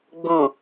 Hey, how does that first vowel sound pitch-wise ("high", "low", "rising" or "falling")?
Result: low